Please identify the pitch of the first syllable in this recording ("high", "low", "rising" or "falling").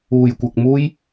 low